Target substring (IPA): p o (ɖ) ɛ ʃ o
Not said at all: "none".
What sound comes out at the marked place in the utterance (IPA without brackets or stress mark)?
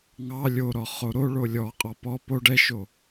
ɖ